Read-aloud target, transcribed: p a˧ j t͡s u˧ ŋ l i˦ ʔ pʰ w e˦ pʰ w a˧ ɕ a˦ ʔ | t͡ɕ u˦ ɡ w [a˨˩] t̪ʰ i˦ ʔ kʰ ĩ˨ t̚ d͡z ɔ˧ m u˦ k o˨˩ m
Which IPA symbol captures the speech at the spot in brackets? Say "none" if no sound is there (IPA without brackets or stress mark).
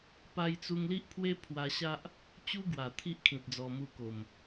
a˨˩